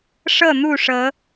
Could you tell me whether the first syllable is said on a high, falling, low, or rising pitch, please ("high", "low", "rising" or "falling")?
falling